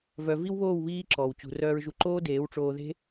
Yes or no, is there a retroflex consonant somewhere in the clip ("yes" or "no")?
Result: yes